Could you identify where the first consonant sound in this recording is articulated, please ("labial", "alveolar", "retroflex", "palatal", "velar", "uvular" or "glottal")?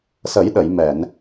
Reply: alveolar